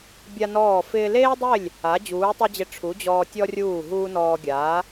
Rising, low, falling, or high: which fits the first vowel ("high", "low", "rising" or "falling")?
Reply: high